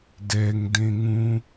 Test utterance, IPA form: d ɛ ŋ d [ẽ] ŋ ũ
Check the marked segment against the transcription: correct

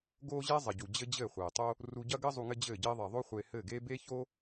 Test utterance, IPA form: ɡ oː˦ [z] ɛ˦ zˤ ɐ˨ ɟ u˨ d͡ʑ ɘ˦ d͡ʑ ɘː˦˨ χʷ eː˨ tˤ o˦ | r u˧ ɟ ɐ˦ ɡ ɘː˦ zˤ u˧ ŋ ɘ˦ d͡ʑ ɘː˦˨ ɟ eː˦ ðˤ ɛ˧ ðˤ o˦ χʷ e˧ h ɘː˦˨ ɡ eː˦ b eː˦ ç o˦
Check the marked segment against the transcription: incorrect: ʑ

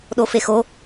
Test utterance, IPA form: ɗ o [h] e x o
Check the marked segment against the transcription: incorrect: f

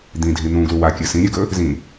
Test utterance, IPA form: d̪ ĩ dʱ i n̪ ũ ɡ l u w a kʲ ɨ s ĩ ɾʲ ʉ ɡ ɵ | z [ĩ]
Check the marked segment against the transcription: correct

